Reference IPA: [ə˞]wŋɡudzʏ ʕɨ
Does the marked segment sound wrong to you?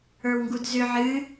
no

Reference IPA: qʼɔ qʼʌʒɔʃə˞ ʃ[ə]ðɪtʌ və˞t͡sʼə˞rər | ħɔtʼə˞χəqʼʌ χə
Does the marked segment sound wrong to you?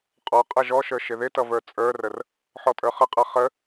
yes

